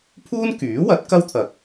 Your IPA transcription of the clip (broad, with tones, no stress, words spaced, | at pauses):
pʰuː˥nkyː˨˥wɐ˨˥t̚ kɐ˥wt̪ʰɐ˨k̚